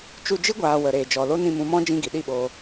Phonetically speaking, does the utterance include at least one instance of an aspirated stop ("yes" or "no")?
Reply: no